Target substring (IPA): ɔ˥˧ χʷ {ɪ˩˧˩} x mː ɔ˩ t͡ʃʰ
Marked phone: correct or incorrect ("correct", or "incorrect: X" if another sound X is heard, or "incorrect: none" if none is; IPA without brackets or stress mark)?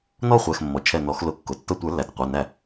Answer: incorrect: ɛ˩˧˩